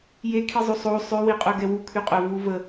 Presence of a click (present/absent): absent